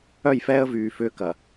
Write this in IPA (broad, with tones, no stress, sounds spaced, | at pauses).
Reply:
œ˦˨ j f ɛː˦ ə̯ v yː˨ f ʏː˦ k ɐ˨